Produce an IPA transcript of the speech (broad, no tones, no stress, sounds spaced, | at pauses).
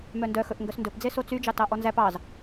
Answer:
m œ n d œ x ɵ ʔ ŋ ɡ œ s n d ɵ p d͡z e s o t͡s y d͡ʒ ɑ t ɑ ʔ ɔ n z æ p ɑ z